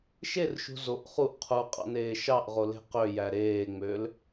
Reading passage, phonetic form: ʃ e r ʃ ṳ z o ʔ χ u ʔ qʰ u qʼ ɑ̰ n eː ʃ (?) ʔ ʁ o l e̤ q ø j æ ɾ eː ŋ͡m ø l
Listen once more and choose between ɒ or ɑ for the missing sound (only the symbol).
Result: ɑ